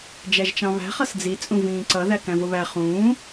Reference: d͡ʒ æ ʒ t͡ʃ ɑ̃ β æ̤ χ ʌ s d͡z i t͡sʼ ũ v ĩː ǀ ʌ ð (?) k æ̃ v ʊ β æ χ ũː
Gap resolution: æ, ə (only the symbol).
æ